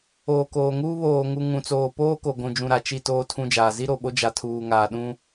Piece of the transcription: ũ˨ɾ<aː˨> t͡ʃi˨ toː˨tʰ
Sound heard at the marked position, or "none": a˨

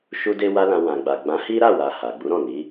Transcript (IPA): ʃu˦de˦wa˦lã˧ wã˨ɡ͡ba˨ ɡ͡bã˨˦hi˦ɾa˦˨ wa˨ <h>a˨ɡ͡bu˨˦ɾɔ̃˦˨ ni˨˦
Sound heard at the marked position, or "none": h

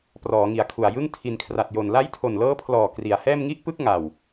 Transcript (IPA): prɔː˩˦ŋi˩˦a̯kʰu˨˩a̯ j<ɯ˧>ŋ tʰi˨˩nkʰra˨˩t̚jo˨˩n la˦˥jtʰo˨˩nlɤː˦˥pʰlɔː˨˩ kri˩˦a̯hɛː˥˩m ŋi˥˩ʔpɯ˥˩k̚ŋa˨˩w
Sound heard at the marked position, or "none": ɯ˥˩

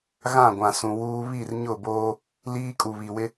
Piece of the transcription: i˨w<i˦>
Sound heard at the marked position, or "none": ɪ˦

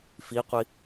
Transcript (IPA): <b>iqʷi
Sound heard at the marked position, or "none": f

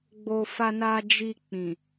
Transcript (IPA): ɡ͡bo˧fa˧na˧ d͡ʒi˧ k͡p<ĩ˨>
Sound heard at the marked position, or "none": ĩ˨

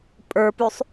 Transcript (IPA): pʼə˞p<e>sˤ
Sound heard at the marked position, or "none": y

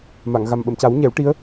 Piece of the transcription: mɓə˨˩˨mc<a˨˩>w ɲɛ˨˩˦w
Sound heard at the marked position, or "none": a˨˩˦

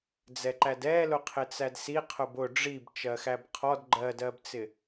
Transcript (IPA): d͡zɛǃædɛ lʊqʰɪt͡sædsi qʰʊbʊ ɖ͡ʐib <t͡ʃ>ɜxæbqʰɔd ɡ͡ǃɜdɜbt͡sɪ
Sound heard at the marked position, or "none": t͡ʃ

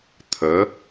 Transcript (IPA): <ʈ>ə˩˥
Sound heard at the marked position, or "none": t̪ʰ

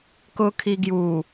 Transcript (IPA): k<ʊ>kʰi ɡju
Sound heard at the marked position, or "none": ʊ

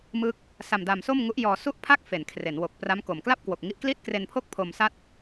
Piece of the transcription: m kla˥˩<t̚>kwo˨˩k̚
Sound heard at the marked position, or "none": p̚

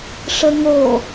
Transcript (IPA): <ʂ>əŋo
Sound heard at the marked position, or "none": ʂ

